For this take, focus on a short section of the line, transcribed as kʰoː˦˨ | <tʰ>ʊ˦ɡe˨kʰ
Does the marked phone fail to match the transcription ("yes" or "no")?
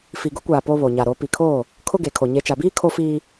yes